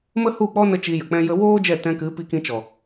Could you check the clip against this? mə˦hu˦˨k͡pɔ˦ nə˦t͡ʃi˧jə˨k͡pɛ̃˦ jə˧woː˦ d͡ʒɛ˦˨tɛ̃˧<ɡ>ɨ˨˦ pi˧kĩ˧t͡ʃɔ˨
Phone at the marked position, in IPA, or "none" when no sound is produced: k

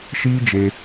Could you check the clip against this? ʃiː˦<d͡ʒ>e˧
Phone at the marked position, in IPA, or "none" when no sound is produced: d͡ʒ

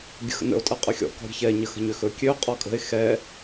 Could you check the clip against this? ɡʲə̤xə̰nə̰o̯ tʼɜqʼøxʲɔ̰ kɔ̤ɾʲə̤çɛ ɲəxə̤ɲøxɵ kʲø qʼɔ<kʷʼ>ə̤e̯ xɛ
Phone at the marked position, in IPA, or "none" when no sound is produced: kʼ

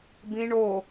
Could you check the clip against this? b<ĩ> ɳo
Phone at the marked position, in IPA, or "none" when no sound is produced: ĩ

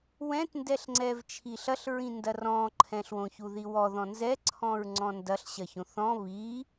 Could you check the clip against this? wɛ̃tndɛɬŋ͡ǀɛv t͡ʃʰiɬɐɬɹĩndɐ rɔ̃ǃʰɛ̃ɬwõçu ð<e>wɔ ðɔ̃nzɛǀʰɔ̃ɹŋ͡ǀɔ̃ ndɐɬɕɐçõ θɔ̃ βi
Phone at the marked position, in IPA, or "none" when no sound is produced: i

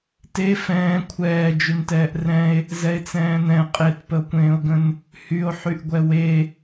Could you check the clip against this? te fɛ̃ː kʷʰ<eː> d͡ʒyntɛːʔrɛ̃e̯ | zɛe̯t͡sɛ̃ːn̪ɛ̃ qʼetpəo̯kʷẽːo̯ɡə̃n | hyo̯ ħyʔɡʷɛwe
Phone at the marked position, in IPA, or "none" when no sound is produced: ɛː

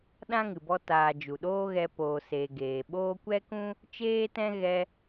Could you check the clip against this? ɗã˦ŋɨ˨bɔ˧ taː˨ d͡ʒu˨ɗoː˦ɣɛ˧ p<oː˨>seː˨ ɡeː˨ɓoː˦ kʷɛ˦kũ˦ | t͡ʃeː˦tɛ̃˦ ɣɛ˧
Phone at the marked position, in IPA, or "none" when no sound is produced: oː˨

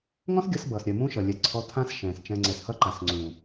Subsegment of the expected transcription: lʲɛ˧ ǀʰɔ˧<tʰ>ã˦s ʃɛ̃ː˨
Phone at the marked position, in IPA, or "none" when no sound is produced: tʰ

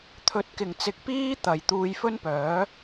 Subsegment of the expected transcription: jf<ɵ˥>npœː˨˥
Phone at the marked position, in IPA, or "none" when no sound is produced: ɵ˥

